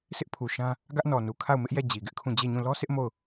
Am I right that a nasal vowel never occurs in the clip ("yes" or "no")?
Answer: no